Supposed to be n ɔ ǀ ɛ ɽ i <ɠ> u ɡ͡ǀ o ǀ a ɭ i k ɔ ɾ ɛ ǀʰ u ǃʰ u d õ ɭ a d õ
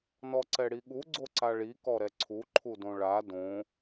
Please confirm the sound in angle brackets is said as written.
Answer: yes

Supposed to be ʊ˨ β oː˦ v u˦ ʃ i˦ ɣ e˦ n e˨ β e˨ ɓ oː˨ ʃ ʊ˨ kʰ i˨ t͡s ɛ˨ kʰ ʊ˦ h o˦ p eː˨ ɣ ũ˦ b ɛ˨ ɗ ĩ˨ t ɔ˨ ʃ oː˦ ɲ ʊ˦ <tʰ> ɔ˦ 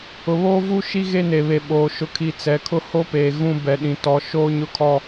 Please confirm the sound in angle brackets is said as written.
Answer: no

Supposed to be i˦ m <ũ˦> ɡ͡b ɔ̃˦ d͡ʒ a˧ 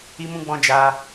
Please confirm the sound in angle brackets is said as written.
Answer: yes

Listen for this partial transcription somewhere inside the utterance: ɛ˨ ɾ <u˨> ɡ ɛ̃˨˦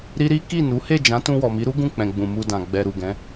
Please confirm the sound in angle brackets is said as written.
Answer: yes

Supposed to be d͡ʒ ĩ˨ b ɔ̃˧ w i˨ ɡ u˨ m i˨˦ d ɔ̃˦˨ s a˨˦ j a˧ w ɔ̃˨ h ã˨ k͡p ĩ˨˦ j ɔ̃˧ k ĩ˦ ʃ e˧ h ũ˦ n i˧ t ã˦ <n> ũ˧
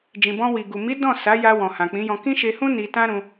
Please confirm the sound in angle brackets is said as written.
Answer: no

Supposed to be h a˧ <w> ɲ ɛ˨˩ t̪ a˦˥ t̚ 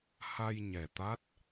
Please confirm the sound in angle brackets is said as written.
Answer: no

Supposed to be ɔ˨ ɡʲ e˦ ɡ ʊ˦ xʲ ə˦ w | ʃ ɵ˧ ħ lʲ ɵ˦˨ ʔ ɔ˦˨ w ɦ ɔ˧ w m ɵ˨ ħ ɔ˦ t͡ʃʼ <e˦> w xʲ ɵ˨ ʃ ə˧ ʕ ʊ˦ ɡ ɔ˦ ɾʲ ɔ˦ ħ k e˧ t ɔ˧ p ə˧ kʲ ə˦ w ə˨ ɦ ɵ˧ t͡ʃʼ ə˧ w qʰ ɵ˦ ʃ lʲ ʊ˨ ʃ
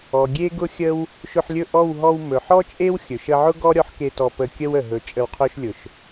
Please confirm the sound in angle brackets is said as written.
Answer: yes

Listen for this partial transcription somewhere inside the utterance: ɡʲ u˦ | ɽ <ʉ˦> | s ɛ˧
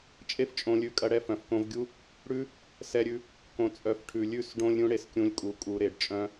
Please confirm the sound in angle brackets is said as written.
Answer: yes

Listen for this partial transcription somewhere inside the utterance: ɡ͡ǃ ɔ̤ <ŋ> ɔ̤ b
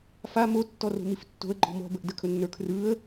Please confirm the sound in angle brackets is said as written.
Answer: no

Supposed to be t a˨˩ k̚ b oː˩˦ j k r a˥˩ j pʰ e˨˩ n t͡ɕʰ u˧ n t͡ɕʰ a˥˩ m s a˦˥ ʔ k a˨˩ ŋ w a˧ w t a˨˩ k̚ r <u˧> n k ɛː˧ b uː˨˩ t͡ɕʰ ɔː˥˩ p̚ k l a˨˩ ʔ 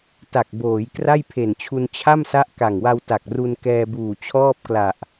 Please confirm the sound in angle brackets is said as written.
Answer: yes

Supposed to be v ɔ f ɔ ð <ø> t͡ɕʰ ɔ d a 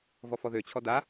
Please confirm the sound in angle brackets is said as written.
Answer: yes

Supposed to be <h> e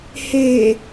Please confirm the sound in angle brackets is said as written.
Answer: yes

